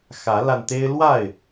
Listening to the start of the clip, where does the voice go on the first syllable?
rising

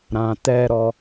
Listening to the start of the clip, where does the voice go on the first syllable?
low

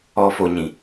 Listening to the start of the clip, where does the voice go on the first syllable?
low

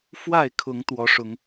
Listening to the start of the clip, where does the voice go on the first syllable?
falling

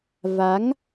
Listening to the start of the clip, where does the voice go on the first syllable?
rising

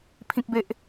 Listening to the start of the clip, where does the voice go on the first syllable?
high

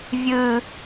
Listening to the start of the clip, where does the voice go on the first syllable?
high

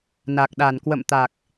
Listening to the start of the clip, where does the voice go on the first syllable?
low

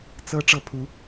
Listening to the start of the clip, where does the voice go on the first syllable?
rising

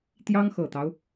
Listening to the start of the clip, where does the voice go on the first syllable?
high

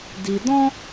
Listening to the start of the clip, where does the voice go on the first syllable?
low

